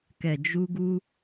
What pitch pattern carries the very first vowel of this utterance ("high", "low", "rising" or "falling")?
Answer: low